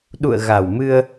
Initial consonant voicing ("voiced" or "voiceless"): voiced